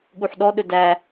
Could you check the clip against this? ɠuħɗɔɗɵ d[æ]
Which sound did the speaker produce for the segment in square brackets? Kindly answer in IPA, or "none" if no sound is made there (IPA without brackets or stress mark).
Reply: æ